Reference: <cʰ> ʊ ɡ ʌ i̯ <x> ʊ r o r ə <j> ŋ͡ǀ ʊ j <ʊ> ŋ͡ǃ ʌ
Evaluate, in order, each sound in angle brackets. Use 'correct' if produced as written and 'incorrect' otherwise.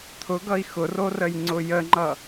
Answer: incorrect, correct, correct, incorrect

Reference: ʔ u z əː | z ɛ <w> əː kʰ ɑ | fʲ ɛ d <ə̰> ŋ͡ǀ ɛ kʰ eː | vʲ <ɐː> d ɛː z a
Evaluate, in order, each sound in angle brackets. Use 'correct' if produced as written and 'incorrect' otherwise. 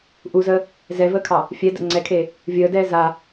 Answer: incorrect, correct, incorrect

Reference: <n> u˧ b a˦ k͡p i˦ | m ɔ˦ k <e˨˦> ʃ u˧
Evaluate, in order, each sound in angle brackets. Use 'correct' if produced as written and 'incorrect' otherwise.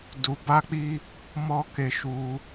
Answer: incorrect, incorrect

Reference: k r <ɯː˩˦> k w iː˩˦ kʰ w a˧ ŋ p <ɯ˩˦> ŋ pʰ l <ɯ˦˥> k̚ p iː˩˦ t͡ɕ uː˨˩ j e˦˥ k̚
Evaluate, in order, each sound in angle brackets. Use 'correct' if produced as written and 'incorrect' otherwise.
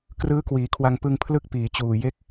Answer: incorrect, incorrect, correct

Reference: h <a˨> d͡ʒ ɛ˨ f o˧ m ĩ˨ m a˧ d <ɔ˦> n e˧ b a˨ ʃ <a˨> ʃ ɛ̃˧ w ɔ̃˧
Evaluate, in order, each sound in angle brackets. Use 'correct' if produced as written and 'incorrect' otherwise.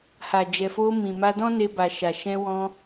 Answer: correct, incorrect, correct

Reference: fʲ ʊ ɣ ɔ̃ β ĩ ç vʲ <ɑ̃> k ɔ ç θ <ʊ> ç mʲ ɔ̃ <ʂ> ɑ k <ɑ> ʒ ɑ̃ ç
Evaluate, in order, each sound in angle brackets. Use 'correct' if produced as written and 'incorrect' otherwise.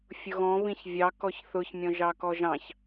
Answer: incorrect, correct, incorrect, incorrect

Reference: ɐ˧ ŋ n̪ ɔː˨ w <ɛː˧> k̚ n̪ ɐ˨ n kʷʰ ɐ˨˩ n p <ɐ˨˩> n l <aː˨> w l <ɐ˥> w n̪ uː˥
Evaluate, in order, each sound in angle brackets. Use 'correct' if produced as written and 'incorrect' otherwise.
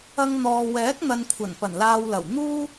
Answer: incorrect, correct, correct, incorrect

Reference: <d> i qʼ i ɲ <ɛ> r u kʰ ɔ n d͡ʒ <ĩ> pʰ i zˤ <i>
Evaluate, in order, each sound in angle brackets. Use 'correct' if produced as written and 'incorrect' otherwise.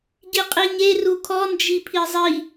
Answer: incorrect, incorrect, incorrect, correct

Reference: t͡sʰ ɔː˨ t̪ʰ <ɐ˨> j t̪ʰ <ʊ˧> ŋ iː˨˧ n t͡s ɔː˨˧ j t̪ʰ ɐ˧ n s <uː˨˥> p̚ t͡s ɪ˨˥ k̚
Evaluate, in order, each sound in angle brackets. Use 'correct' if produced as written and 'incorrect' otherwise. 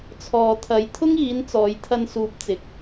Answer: incorrect, incorrect, incorrect

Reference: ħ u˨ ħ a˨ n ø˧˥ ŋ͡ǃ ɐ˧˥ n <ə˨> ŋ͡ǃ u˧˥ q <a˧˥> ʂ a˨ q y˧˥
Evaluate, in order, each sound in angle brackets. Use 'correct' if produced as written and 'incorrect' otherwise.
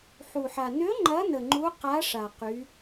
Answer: correct, correct

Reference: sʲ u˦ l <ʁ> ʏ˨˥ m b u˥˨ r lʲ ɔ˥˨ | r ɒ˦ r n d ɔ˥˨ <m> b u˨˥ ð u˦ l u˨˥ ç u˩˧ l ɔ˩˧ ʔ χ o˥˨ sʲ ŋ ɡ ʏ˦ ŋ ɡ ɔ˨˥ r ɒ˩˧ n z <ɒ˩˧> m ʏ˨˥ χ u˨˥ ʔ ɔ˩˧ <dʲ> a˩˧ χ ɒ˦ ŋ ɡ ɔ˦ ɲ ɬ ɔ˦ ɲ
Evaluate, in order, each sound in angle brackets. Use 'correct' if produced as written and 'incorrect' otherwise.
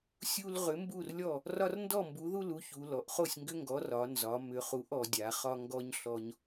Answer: correct, correct, correct, correct

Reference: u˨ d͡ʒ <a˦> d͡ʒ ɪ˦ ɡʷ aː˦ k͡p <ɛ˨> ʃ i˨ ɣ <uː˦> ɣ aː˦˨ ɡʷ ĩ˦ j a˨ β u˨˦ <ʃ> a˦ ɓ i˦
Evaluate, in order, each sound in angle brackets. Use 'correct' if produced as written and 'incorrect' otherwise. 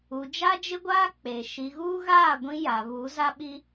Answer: correct, incorrect, correct, incorrect

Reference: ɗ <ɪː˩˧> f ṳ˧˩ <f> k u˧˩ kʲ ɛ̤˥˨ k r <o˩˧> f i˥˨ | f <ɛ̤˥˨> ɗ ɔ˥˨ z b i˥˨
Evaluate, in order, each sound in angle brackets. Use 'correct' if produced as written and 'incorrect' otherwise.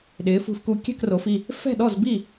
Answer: correct, correct, correct, correct

